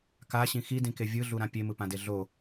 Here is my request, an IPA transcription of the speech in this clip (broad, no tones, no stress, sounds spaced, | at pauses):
k a ɕ ĩ x i d ĩ k e vʲ ɯ ɮ u ɾ ã pʲ e m ɯ p ã d e ɮ o